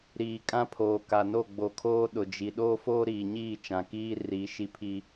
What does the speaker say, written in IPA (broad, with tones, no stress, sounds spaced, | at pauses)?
ɾ iː˨ kʼ ã˦ pʰ oː˨ k a˨ n o˦˨ ɡ͡b o˨ kʰ oː˦ ɗ ʊ˨ d͡ʒ i˨ ɗ oː˦ f oː˦ ɾ iː˨ ɲ iː˦˨ t͡ʃ ã˨ k iː˦ r i˨˦ ʃ i˦ pʰ i˦